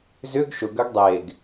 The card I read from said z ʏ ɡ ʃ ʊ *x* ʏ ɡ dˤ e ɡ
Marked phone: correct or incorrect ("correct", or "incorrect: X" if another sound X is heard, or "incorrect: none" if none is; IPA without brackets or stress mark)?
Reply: incorrect: ɡ